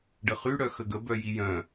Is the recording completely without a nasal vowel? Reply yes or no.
no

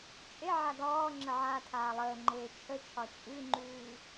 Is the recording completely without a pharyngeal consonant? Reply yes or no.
no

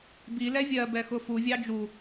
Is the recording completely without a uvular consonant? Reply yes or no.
yes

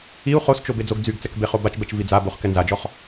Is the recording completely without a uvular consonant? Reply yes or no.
no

